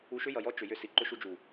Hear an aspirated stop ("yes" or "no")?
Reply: no